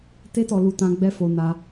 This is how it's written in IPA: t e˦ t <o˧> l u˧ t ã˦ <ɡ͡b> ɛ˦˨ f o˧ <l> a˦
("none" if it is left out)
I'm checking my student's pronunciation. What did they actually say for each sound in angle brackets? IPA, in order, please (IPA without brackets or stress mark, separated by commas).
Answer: ɔ˧, ɡ͡b, n